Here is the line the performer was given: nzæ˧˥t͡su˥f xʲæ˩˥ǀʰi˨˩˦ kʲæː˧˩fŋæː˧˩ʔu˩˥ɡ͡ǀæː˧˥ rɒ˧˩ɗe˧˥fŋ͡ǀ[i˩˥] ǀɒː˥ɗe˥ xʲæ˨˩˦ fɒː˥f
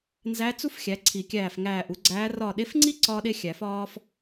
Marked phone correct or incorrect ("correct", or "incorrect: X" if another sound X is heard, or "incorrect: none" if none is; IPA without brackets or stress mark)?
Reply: incorrect: i˥